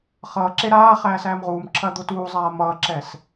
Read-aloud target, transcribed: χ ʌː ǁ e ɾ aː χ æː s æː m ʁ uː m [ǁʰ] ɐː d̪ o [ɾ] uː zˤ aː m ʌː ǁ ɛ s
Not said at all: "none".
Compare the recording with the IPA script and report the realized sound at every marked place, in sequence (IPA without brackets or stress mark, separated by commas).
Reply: ǁʰ, t